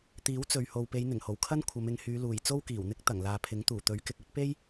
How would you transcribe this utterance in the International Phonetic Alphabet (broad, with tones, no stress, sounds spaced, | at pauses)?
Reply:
t̪ iː˨˥ w t͡s ɵ˨ ɥ h o˨ w p e˨˧ j n̪ ɪ˨˩ ŋ h o˨˩ w kʰ ɐ˥ n kʷʰ ɐ˨˧ m ɪ˨˧ ŋ h yː˨˧ l uː˨˩ j t͡s o˥ w k iː˨˩ w n̪ ɪ˥ k̚ t̪ ɐ˨˩ ŋ l aː˨ pʰ ɪ˨˥ ŋ t̪ uː˨˩ t̪ ɵ˨˥ ɥ k ɪ˨ k̚ ɵ˥ t̚ p e˥ j